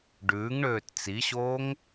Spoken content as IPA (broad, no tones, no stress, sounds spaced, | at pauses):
ɖ ʉː ŋ ɳ øː t t͡s i ɕ oː ŋ